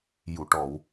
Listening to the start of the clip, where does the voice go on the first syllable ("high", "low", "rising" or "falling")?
low